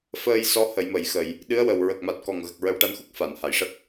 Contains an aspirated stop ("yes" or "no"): no